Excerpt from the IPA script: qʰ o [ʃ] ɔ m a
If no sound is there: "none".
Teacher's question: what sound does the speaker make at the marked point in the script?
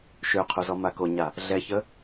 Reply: z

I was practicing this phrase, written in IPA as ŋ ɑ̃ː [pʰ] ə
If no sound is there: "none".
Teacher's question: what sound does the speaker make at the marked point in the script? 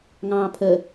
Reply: pʰ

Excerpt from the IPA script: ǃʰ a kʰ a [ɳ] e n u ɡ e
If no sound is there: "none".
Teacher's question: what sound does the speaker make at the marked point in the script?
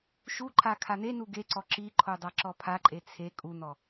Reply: n̪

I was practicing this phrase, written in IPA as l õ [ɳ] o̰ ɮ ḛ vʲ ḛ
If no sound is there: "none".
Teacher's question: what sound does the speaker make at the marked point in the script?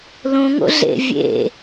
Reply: ŋ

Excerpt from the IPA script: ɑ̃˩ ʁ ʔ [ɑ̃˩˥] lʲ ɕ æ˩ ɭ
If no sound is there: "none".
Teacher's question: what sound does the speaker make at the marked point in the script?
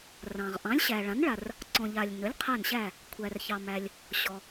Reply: ɑ̃˩˥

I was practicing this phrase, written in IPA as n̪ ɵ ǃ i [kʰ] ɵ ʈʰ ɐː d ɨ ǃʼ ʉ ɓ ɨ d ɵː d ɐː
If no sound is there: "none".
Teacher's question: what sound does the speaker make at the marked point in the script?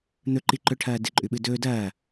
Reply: ǃ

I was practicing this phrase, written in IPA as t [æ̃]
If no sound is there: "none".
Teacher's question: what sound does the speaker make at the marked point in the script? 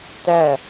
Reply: æ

